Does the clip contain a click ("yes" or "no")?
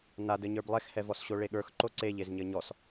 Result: yes